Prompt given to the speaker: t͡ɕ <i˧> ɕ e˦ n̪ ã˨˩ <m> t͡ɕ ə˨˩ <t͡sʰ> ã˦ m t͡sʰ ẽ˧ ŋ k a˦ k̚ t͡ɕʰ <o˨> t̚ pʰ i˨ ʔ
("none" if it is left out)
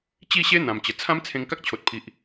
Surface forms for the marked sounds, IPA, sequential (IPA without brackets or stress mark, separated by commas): i˥˧, m, t͡sʰ, o˨